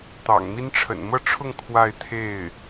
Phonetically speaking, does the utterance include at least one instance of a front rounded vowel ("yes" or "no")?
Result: no